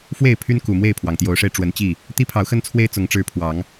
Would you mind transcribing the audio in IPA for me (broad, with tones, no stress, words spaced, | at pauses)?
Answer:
fwe˥˨ɪ̯pʰy˦nku˨˩ mwe˥˨ɪ̯pʰwɑ˩ŋt̪jo˨˦ʊ̯ʂe˧ɪ̯ ʈ͡ʂwə˨˦nt͡ɕi˥˨ | t̪i˦pʰɑ˨˦ʊ̯xə˦nt͡sʰwe˦ɪ̯ t͡sʊ˨˦ŋʈ͡ʂɻ̩˦ pʰwɑ˨˦ŋ